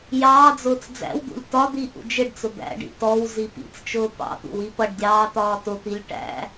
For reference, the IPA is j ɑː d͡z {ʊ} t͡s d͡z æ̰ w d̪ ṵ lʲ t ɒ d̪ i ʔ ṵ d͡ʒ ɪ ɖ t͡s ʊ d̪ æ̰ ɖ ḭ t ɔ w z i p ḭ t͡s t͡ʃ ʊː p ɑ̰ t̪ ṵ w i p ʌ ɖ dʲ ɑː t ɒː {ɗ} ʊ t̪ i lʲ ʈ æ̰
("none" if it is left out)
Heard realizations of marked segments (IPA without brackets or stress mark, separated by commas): ʊː, t